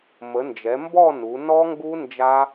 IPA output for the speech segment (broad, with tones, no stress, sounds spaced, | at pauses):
m ə˩˧ n d͡ʒ ɛ˩˧ m b ɔ˥˧ n u˩˧ n ɔ˦˥ ŋ ɡ u˦˥ n d͡ʒ a˦˥